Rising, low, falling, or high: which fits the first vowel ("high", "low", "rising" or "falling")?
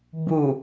low